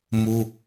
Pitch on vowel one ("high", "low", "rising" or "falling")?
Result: high